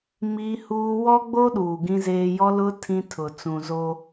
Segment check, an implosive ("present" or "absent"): present